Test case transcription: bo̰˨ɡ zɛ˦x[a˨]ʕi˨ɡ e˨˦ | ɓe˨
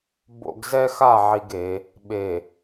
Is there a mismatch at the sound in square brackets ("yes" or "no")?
yes